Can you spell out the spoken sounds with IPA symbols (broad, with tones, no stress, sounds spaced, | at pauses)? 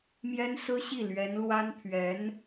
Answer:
m j ɛ˥ n s ɹ̩˥ ɕ i˥˩ l ɥ ɛ˧˥ n l w a˥ n pʰ ɥ ɛ˧˥ n